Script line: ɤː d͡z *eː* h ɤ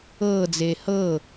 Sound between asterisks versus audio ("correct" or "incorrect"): correct